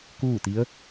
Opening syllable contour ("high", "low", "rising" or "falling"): falling